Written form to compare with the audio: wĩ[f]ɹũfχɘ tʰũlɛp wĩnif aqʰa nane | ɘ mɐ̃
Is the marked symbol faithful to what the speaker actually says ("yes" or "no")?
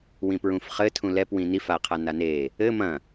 no